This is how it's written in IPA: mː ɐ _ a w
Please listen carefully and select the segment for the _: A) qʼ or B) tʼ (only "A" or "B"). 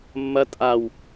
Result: B